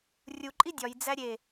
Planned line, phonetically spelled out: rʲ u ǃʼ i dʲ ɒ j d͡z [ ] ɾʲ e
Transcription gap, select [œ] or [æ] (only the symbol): æ